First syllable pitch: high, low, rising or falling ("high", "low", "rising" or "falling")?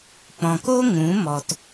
low